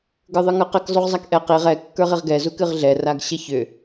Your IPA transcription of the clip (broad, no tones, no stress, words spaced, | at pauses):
ɡə˞ðˤɨŋə˞qɘk zˤuʁzˤakʔɛ qiʁ ɛ kːə˞ʁiʁɡɛ zukɨʁɮɛ raɡɕəçʏ